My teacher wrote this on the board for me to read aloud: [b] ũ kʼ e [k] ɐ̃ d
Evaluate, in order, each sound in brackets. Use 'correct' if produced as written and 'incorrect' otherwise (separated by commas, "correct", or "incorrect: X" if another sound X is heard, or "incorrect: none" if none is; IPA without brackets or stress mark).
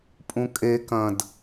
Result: incorrect: pʼ, correct